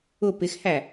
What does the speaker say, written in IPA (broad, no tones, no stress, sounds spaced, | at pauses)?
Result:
ʊ p ɪ x h æ